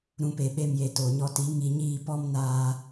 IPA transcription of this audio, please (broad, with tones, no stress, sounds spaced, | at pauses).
ɾ ũ˧ p e˨ ɓ e˧ m j e˨ t o˨ ɲ ɔ˧ t i˨˦ ŋ i˧ ɲ iː˦˨ p ɔ˦ m n aː˧